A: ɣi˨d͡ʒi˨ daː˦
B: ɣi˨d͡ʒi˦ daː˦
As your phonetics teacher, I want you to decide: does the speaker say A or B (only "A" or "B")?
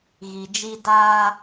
B